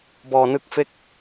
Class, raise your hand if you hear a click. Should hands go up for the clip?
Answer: no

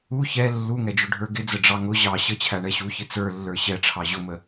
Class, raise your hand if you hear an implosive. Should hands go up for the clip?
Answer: no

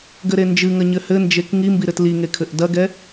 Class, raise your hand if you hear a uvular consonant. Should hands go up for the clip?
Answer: no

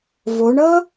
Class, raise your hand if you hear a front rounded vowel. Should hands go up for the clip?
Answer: no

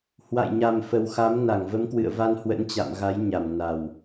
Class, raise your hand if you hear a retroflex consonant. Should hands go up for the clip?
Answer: no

